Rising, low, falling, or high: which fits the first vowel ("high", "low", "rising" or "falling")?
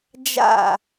falling